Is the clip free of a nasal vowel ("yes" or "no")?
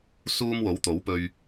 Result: yes